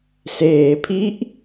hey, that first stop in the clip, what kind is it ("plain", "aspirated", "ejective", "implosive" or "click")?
aspirated